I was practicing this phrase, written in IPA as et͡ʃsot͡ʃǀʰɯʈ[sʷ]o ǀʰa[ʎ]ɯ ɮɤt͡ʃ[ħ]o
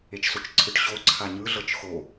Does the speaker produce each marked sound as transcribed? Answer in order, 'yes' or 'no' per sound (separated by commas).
no, no, no